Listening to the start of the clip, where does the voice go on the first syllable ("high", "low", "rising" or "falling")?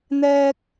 high